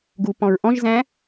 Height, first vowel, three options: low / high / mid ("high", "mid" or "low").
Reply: high